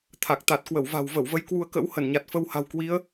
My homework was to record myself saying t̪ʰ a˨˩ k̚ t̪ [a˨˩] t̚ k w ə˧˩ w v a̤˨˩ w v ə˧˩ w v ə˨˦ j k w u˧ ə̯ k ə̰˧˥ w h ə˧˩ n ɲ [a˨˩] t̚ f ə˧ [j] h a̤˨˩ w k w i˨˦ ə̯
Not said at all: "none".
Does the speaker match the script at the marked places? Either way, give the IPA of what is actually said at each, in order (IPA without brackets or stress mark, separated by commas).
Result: a˨˩, a˨˩, w